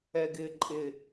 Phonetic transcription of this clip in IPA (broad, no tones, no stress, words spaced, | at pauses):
ɛɡɪːǃʼɪ